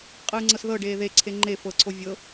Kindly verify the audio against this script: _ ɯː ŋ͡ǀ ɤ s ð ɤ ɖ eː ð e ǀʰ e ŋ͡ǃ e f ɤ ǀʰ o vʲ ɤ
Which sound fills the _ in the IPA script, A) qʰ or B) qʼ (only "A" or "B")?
B